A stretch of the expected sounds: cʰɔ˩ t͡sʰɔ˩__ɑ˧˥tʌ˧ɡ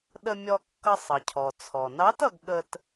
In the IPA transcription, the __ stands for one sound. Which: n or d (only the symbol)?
n